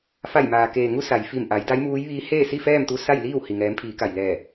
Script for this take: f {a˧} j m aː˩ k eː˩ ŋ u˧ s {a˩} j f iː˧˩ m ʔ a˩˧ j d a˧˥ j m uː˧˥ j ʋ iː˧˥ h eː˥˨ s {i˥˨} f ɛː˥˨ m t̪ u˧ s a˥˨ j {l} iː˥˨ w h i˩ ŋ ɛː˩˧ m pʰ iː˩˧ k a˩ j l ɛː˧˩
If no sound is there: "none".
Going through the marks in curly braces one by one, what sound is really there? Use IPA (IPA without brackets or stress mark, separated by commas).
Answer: a˧˩, a˩, i˥˨, l